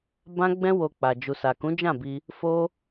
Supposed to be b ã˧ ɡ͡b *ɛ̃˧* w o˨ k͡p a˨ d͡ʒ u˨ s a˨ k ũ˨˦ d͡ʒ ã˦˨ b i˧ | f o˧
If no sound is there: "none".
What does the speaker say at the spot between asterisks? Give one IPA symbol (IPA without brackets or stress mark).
ɛ̃˧